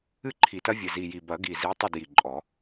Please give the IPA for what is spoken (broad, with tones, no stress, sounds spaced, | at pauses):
ɨ˥˨ ǃʰ i˨˩ t ɐ˦ vʲ ɘ˨˩ z i˨˩ j i˨˩ b ɐ˨˩˦ ɡ i˨˩ z i˨˦ tˤ ɐ˥˨ d j i˨˩ ǃʼ ɔ˨˩˦